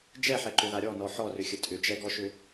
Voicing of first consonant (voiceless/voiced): voiced